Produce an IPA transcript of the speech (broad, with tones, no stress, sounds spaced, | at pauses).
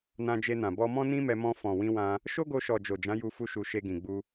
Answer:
n ã˧ d͡ʒ e˧ n ã˨ b ɔ˧ m ɔ̃˦ n ĩ˦ m ɛ˧ m ɔ̃˧ f ɔ̃˨ w ĩ˧ w ã˧ | ʃ o˦ ɡ o˧ ʃ ɔ˨ d͡ʒ o˨ d͡ʒ ã˨˦ j u˧ f u˧ ʃ u˧ ʃ e˧ ɡ ĩ˨ ɡ͡b u˧